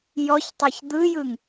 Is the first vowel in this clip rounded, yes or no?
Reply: yes